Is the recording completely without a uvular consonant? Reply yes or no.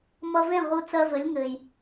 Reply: no